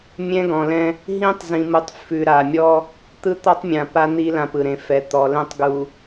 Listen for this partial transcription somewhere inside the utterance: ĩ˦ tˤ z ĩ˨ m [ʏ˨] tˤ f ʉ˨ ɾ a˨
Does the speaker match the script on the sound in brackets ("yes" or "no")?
no